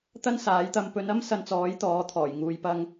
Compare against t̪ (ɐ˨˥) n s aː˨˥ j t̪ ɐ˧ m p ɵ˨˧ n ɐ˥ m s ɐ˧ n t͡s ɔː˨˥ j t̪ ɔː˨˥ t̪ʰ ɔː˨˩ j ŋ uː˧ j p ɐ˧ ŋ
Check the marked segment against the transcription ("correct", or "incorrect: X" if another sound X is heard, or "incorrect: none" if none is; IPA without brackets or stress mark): incorrect: ɐ˥